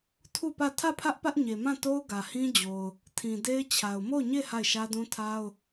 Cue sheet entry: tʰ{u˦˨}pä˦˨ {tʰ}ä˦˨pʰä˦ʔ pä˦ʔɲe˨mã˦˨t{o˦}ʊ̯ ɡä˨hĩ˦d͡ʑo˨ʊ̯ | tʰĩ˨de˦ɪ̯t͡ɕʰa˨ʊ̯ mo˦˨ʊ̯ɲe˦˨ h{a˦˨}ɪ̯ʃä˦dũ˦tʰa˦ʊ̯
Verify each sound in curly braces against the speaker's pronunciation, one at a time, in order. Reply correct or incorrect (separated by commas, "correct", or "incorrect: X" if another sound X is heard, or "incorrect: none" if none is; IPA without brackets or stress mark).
correct, correct, correct, correct